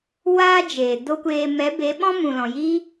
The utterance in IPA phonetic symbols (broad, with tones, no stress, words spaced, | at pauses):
waː˧ d͡ʒeː˨do˦kʷeː˧ mɛ˨˦be˨˦ɓɔ̃˦ mũ˨lɔ̃˨jiː˦